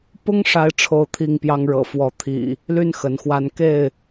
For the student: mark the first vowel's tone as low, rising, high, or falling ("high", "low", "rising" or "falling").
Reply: high